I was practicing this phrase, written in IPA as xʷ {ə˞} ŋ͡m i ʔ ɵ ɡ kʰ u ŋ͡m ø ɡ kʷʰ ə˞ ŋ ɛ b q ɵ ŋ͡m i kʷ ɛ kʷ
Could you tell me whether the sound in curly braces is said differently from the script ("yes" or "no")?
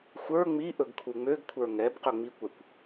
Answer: no